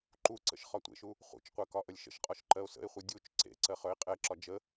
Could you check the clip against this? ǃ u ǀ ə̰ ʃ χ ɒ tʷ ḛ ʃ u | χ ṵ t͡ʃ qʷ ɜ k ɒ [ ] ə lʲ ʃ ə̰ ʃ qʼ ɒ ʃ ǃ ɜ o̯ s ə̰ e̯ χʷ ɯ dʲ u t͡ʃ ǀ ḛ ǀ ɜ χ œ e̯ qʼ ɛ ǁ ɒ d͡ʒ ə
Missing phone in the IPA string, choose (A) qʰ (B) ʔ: B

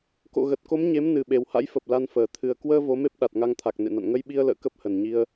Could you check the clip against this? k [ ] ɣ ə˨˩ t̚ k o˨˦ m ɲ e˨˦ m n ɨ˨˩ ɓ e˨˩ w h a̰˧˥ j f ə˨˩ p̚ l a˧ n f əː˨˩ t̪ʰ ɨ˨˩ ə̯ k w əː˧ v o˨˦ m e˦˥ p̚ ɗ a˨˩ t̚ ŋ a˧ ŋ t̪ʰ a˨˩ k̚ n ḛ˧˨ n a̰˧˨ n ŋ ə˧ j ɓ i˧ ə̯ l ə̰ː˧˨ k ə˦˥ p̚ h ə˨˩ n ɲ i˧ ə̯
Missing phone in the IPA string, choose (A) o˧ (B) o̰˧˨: B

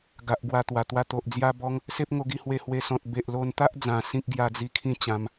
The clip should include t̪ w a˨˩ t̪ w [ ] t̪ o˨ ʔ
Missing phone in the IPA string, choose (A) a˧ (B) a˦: A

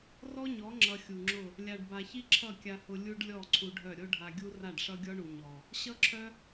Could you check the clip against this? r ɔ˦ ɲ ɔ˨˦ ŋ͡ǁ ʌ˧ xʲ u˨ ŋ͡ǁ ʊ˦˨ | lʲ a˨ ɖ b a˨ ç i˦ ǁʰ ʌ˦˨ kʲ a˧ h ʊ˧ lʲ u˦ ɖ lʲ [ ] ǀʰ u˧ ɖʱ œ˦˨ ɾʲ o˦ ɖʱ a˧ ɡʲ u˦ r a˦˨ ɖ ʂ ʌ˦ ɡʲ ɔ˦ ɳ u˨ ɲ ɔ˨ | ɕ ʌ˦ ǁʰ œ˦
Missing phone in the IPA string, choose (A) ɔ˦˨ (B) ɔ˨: A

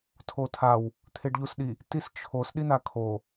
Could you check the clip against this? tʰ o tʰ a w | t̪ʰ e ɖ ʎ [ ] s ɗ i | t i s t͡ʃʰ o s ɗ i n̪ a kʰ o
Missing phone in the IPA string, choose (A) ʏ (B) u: B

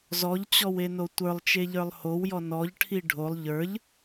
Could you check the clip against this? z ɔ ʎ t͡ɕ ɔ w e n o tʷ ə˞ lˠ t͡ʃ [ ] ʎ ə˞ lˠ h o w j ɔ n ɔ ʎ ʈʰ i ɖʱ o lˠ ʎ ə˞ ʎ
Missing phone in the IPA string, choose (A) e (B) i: A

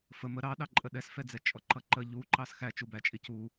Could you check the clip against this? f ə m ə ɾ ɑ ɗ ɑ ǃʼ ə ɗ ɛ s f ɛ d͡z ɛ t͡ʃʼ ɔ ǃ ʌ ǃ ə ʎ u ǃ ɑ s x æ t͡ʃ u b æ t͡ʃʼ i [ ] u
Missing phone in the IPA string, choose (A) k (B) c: B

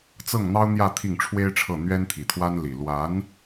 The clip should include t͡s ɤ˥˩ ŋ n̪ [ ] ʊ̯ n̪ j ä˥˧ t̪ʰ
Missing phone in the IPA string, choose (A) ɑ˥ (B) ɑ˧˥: A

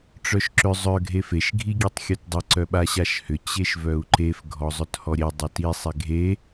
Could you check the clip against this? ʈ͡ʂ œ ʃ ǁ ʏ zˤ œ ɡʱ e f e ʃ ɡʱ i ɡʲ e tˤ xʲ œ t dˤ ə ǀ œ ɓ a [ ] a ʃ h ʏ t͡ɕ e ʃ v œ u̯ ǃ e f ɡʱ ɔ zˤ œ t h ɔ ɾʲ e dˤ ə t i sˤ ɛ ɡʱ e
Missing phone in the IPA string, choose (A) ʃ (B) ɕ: B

